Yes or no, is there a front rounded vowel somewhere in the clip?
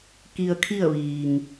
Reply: no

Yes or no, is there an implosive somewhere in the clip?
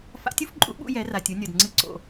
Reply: yes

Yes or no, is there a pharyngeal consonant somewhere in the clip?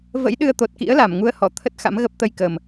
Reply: no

